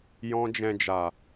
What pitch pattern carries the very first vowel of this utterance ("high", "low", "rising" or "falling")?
high